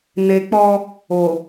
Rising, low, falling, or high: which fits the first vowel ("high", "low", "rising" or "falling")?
low